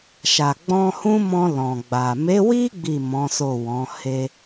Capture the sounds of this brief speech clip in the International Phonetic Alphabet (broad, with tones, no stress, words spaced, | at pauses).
ʃa˨ɡ͡bɔ̃˧hũ˦mɔ̃˧ lɔ̃˨ɡ͡ba˨ me˨˦wi˦ ɡ͡bi˦˨ mɔ̃˨˦so˦˨ wɔ̃˨˦ he˧